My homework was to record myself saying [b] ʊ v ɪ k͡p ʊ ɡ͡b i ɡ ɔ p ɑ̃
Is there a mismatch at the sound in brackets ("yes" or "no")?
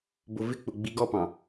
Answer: no